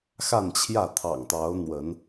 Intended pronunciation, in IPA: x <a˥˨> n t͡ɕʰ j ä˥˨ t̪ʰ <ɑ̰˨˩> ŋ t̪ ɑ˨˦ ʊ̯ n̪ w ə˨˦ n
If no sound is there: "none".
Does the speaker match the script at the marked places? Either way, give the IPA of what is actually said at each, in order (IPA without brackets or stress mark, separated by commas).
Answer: a˥˨, ɑ̰˨˩